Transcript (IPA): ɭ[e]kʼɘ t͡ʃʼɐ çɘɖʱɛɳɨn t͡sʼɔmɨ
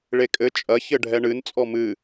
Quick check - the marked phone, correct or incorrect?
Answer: correct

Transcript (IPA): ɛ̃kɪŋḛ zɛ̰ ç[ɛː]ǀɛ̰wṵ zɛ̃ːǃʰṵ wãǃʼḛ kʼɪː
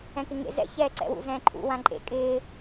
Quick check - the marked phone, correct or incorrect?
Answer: correct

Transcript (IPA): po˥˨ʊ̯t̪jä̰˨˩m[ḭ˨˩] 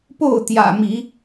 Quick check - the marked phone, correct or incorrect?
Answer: incorrect: i˨˦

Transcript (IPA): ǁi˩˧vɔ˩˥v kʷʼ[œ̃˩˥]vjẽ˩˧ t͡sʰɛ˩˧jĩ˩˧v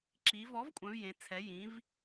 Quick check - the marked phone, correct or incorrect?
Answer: incorrect: œ̃˩˧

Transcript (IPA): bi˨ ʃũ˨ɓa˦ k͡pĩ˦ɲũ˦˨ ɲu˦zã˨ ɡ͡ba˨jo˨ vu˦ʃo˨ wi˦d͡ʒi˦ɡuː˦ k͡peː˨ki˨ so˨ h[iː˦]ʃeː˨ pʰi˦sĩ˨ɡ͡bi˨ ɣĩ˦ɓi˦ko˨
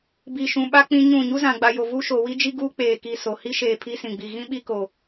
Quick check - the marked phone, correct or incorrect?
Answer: incorrect: i˦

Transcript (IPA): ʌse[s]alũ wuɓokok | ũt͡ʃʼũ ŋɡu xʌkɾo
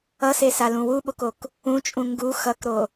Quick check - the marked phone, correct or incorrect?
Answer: correct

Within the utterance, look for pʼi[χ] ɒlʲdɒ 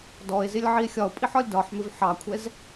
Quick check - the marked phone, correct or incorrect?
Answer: incorrect: ħ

